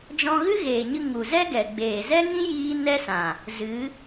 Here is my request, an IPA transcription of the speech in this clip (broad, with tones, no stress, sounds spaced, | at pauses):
d͡ʒ ɔ̃˧ ɣ ɨ˦ ɣ eː˨ ɲ ɨ˧ ŋ u˨ z ɛ˦ ɡ ɛ˨ ɡ͡b eː˨ z ɛ˦ ŋ ĩ˦ j iː˦ n ɛ˦ s ã˨ | z ɨ˨˦